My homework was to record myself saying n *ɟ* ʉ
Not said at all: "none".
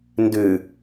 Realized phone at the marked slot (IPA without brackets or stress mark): d